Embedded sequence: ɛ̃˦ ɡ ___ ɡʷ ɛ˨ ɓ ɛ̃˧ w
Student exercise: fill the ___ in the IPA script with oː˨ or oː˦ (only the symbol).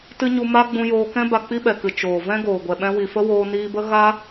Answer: oː˨